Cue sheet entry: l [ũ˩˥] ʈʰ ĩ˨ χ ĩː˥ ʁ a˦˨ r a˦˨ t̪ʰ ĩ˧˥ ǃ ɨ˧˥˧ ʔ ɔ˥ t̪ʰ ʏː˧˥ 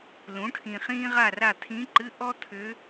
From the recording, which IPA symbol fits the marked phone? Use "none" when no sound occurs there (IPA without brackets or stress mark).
ũ˩˥